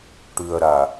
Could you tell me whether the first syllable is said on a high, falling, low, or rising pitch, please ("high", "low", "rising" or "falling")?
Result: low